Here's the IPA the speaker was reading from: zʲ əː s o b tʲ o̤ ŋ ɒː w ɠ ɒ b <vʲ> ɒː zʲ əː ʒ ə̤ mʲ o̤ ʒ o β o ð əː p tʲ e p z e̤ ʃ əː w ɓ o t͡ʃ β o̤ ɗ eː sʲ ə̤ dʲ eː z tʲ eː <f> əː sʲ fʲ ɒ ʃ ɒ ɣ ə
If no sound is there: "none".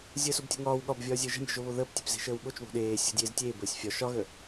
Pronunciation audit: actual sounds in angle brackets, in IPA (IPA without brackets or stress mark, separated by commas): vʲ, b